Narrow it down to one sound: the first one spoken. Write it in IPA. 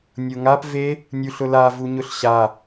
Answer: nʲ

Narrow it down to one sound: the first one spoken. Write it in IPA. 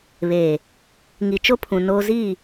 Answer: β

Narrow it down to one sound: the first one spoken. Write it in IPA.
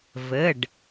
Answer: v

